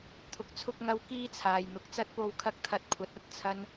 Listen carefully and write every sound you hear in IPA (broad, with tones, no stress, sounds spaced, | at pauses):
t̪ʰ ʊ˧ k̚ t͡sʰ ʊ˥ k̚ ŋ ɐ˥ w k iː˥ t͡sʰ aː˨ j n̪ ʊ˨˥ k̚ t͡s ɐ˥ t̚ p o˧ w kʰ ɐ˥ k̚ t̪ʰ ɐ˧ t̚ kʷʰ ɐ˨˥ t̚ ɐ˧ t̚ t͡sʰ ɐ˥ n